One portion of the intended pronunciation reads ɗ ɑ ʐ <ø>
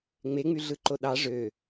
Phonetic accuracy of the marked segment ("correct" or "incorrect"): correct